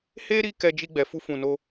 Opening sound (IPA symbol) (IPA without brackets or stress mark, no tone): h